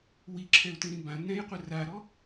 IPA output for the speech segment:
w i ǁʰ ɛ ʊ̯ t ĩ ɾ ĩ b ã n ɛ̃ j qʷ ə r a ɾ ɔ

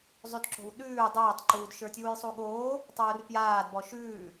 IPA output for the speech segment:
zˤ ʉ d ǁ o̤ w ɗ ʉː dˤ aː tˤ ǃ uː d ʃ ə˞ tʲ uː j sˤ u ɠ oː | tˤ uː r p j aː d b ɔ ʃ ʉː

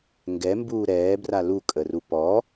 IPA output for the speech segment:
ŋ ɡ ɛ m b uː ɾ ɛː b r a l u kʼ ə r u p ɔ

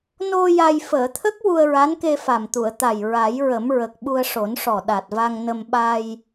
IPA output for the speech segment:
n o˧ j a˧ j f əː˨˩˨ t̪ʰ ə˦˥ k̚ w u˧ ə̯ ɹ a˧˥ n k e˧ f a˨˩ m t̪ u˨˩˨ ə̯ t̪ a˨˩ j ɹ a˨˩˦ j ɹ ə˨˩˦ m ɹ ə˨˩ k̚ ɓ u˧ ə̯ ʂ o˨˩˦ n ʂ ɔ˨˩ ɗ a˨˩ t̚ v a˧ ŋ n ə˧ m ɓ a˧ j

